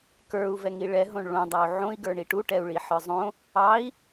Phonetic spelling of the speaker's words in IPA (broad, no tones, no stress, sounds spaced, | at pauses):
k ə˞ u̯ v ɛ ŋ i ɭ ɛ ɦ õ ɳ ɭ õ dˤ ɑ u̯ ʕ õ i̯ ɡ ə˞ ɳ i ʈ u ʈ ɛ u̯ ɭ i ħ ə˞ zˤ õ | ɑ i̯